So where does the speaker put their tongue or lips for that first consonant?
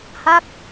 throat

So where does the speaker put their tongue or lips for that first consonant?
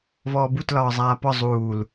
lips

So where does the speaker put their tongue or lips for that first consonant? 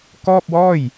velum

